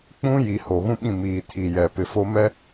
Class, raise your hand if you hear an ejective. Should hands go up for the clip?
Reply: no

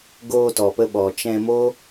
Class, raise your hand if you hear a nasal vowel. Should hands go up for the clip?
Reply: yes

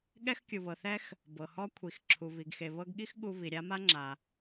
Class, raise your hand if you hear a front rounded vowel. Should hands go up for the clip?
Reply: no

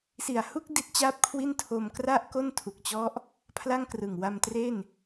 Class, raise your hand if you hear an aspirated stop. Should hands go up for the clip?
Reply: yes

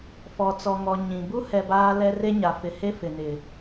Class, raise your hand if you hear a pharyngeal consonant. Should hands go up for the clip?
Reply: no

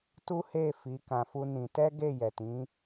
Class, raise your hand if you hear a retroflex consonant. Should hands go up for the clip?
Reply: no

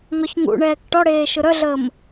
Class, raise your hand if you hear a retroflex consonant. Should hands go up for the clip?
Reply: yes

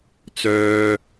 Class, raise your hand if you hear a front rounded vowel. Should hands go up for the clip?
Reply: yes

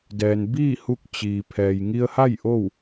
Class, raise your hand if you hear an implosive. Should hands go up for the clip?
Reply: no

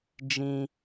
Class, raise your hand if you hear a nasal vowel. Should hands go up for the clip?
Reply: yes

